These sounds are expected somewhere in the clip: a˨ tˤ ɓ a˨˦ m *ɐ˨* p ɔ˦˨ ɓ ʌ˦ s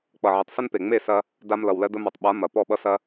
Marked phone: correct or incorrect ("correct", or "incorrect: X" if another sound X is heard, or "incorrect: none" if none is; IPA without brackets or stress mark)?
correct